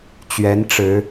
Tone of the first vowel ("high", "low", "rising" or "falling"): rising